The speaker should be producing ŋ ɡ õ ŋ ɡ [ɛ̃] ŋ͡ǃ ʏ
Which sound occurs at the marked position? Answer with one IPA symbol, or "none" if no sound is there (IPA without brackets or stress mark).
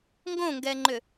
ɛ